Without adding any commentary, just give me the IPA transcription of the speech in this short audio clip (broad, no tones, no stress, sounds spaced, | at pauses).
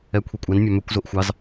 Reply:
ɛ kʷʰ i kʷʼ ɛ n mʲ ɑ m ø kʷ z o ʔ xʷ ɑ z